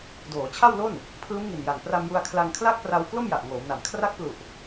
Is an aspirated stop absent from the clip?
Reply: no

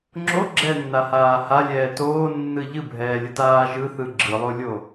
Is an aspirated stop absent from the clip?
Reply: yes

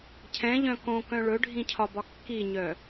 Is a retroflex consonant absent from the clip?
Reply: no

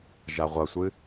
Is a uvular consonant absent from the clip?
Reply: no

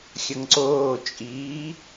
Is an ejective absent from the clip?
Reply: no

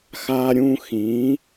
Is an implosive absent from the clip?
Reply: yes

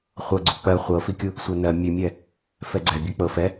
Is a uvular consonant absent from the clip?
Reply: no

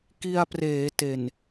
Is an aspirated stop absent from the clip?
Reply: yes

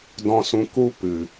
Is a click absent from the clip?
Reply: yes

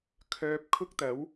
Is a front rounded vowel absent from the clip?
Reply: no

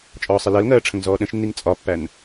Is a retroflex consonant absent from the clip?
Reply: no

